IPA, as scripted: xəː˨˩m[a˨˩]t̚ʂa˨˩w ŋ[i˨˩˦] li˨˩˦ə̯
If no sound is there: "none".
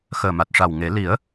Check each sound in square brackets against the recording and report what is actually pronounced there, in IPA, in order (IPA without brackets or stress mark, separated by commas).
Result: a˨˩, e˨˩˦